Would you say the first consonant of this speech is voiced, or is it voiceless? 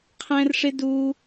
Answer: voiceless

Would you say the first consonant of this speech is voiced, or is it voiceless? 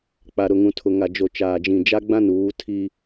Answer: voiceless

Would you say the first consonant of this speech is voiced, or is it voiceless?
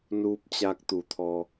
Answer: voiced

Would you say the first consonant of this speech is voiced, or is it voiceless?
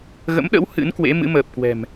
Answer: voiced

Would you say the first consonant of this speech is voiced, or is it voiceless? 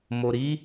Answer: voiced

